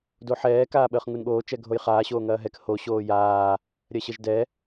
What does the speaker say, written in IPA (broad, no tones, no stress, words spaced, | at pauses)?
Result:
doħɛː kaːɓəːχŋunɠoː t͡ʃɛɡʱojχaː ɕoːŋɐːɦɛk ho ɕoːjaː | ɾʲɐɕəʒdɛ